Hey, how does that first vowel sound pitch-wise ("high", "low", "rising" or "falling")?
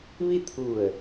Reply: falling